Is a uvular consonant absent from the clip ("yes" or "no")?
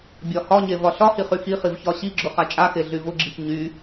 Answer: no